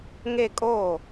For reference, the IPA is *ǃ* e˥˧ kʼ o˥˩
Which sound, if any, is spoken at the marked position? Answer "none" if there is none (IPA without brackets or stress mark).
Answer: ŋ